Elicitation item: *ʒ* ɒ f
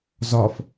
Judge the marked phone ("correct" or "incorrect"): incorrect